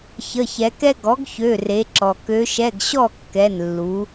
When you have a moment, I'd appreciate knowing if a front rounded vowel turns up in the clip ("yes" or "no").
yes